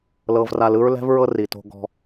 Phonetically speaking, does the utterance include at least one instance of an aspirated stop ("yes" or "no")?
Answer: no